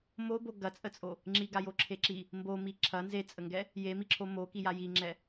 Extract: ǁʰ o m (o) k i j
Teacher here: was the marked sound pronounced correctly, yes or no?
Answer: yes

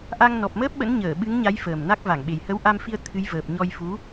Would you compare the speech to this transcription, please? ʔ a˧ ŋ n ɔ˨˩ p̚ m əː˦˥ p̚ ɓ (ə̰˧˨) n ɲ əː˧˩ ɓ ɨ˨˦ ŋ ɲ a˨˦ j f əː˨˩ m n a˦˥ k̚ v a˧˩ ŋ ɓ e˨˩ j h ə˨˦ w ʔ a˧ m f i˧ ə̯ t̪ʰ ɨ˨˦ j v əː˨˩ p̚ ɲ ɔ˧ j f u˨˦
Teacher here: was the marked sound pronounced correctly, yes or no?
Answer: no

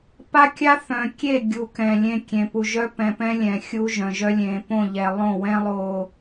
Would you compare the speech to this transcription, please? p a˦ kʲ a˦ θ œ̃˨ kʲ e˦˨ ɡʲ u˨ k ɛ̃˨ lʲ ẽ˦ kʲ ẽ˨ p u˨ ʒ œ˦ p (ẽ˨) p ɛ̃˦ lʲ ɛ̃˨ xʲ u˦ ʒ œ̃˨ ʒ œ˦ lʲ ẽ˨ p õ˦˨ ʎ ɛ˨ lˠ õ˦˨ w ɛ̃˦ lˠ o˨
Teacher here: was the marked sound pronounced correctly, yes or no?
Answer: no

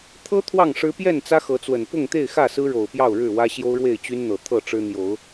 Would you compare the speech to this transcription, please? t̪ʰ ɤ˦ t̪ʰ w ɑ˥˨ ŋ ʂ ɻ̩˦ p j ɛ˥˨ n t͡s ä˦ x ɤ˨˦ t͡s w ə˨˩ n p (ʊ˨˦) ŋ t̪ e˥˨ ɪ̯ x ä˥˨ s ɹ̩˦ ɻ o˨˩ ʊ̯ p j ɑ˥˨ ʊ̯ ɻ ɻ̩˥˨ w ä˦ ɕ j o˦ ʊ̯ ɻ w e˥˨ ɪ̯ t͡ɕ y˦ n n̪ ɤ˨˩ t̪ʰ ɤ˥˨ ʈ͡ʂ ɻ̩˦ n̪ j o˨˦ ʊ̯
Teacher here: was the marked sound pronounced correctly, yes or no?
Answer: no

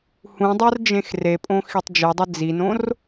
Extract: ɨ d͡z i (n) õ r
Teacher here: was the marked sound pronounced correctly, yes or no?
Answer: yes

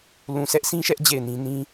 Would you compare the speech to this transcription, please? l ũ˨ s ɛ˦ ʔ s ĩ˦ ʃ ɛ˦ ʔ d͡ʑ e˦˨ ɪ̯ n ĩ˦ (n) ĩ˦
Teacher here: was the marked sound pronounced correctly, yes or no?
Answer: yes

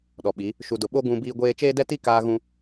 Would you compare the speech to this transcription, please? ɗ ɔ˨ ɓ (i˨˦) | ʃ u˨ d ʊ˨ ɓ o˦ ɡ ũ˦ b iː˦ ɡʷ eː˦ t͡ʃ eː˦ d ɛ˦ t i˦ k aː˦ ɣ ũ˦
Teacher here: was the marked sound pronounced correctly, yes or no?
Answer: yes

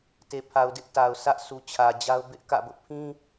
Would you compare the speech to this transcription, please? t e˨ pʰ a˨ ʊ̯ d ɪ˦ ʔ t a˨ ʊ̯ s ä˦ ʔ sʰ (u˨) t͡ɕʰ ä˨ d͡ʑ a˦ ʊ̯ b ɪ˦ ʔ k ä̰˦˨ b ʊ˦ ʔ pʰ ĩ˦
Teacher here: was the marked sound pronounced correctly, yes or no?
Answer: yes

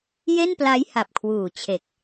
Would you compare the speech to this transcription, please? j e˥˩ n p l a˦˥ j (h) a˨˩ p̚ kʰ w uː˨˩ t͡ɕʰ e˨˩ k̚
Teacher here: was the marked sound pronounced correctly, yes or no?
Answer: yes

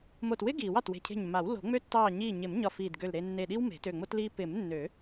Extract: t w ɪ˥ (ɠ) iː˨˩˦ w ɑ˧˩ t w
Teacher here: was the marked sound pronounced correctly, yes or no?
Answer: no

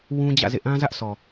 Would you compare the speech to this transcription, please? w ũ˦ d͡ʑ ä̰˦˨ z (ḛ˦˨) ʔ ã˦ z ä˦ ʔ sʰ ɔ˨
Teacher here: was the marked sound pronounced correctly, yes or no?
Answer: yes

